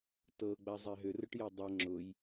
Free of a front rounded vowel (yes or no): no